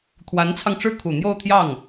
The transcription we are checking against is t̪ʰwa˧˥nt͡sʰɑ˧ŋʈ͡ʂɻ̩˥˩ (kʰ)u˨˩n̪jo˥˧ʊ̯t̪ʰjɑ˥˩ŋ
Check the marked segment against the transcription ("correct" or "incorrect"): correct